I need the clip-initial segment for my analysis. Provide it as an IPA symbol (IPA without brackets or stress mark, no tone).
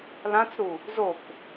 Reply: l